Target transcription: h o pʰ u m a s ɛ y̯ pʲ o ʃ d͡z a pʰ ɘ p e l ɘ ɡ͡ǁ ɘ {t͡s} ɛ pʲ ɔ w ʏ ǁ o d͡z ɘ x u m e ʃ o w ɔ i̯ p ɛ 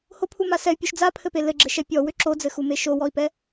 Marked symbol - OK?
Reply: no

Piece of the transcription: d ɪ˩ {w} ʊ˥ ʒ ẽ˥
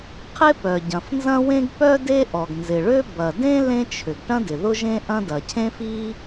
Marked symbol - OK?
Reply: no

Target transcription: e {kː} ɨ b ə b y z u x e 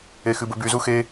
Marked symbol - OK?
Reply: no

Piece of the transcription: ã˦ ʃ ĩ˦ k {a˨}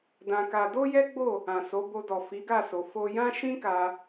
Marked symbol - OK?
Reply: no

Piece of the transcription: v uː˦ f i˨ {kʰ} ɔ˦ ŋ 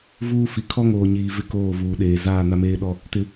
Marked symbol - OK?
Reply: yes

